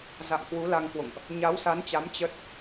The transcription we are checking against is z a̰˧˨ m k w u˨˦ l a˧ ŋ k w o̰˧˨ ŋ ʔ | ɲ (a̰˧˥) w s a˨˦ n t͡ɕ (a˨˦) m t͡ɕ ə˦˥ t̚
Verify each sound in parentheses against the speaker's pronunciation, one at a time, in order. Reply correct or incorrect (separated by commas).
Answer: incorrect, correct